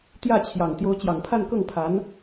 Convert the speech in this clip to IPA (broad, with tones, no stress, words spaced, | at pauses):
t̪jä˥˩t͡ɕʰjɑ˨˩ŋ t̪jo˧˥ʊ̯t͡ɕjɑ˨˩ŋpʰa˥˧n kɤ˥˩ŋpʰa˧˥n